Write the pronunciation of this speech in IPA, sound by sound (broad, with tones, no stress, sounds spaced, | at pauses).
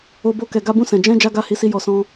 o˧ b o˧ k ɛ˨ ɡ a˧ b ũ˧ s ɛ̃˨ d͡ʒ ɛ̃˧ d͡ʒ a˦ ɡ a˦˨ h i˧ s i˧ j ɔ˧ s ɔ̃˦